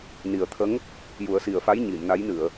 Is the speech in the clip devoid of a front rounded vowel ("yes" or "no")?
yes